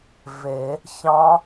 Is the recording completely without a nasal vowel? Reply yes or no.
no